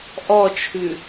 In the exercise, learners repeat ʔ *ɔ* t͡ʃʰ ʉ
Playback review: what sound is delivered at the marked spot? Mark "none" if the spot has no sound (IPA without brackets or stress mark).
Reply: ɔ